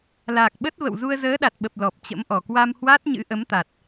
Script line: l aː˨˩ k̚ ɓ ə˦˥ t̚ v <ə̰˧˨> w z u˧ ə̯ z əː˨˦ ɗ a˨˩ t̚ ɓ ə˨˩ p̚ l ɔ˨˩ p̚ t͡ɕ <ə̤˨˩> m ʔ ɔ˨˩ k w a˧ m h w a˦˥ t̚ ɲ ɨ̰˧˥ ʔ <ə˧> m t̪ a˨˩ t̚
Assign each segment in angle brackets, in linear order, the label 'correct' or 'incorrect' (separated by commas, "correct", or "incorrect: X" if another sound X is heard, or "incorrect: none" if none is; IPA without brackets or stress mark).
correct, incorrect: ə̰˧˥, incorrect: ə˨˦